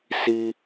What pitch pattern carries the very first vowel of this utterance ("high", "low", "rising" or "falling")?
high